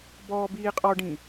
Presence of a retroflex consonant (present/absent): present